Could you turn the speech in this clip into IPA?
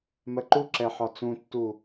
m ɜ ǃ u ǁ ɛ ħ ɒ t͡s ũ tː u

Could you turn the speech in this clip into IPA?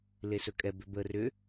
l e s ɵ kʼ ɛ b ʏ b ə r ʏ

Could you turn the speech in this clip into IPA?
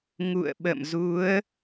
ŋ ṵ˧˨ ə̯ ɓ ə̰˧˨ m z u˨˦ ə̯

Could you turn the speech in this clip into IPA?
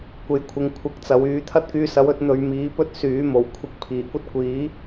kʷ e˨ j kʷʰ ɪ˨ ŋ kʷʰ ɪ˧ k̚ t͡s ɐ˨˧ w yː˨˧ t̪ʰ ɐ˥ t̚ k yː˧ s ɐ˨˥ w ɵ˨˥ t̚ n̪ ɵ˧ ɥ m iː˨˥ p ɵ˥ t̚ s yː˨˥ m o˨˩ w kʷʰ ɪ˨˥ k̚ pʰ iː˨˩ kʷ ɐ˥ t̚ kʷ iː˨˥

